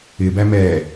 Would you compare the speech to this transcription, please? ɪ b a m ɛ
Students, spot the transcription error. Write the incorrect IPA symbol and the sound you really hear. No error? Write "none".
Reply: a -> æ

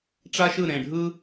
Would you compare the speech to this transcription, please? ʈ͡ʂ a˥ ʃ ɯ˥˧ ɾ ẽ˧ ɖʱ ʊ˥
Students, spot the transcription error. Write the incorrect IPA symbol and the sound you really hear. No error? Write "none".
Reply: ʊ˥ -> ɯ˥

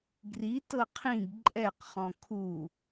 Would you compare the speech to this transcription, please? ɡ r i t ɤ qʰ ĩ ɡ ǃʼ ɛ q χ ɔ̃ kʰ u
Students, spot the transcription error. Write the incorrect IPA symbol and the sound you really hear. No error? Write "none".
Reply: none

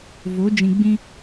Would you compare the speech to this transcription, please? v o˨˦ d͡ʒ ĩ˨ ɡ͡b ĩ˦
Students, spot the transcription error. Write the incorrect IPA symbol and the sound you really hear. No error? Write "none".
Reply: none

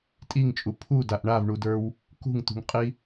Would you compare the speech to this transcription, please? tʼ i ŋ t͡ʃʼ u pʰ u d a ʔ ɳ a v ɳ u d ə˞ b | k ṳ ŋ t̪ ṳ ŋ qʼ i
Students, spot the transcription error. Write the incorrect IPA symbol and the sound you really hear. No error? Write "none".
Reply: b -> w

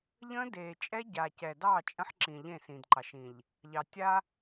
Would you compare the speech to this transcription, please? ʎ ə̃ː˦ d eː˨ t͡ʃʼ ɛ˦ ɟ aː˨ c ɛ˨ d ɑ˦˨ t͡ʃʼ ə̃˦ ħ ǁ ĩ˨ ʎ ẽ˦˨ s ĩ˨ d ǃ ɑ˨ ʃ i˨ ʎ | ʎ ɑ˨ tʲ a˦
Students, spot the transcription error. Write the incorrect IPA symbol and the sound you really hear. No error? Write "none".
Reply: i˨ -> ĩ˨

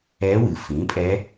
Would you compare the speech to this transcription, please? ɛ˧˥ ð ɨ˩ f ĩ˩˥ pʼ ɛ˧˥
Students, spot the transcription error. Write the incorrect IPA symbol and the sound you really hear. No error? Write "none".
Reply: ð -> w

